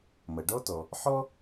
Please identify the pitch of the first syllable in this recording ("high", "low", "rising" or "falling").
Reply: low